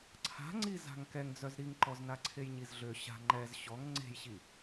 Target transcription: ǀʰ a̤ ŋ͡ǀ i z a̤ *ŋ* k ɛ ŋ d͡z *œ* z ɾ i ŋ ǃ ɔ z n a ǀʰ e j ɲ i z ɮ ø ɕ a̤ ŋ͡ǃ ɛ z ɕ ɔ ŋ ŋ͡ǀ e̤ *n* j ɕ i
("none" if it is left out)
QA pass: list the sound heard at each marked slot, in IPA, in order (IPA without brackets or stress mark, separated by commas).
ŋ, œ, none